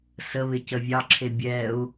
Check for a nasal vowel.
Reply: absent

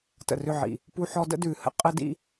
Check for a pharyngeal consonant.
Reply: present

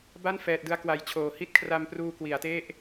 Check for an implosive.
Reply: absent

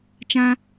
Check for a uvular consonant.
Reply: absent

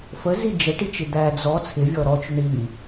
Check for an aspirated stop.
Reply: present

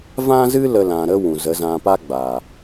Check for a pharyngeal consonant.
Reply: absent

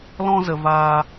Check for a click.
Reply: absent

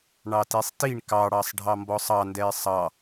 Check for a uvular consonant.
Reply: absent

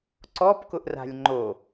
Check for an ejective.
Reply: absent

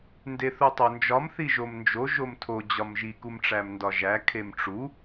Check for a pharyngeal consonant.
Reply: absent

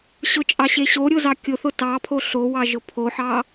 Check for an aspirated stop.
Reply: present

